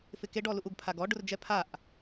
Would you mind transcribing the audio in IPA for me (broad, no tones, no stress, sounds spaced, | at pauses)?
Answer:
f ɪ k e ɖ ɔ l u ʔ u ɡ pʰ a ɡ ɔ ɖ ʊ r d͡ʒ ɛ pʰ a ʔ